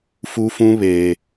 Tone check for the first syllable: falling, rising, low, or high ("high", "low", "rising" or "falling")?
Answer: high